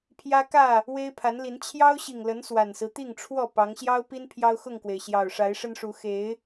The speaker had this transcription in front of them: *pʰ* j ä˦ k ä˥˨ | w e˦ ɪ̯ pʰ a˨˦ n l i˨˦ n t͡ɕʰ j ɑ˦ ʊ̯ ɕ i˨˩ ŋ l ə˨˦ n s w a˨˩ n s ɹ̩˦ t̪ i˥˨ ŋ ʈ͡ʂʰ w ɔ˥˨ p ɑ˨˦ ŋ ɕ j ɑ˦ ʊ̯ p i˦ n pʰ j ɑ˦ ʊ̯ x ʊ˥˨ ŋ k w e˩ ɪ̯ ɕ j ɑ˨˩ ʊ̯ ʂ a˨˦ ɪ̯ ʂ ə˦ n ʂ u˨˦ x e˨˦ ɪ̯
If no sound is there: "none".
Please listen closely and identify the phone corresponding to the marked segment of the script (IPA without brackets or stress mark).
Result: pʰ